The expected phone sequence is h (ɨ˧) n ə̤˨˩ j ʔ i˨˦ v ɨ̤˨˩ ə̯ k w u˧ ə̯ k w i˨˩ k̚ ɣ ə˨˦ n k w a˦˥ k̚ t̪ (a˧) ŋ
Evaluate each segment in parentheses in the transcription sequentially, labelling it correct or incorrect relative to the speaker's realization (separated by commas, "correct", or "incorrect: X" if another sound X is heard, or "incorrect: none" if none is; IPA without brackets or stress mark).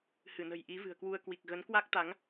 incorrect: ɨ˧˩, incorrect: a˨˦